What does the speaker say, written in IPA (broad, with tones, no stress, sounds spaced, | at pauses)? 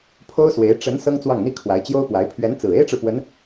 pʰ o˥ ʊ̯ s w e˧˥ ɪ̯ ʈ͡ʂ ə˧˥ n s ɤ˥ ŋ t͡s w ɑ˥˩ ŋ n̪ i˥ kʰ w a˧˥ ɪ̯ t͡ɕ j o˥ ʊ̯ p w a˧˥ ɪ̯ pʰ ɥ ɛ˧˥ n t͡s ɹ̩˨˩ e˥ ɪ̯ ʈ͡ʂ ɻ̩˨ p w ə˧˥ n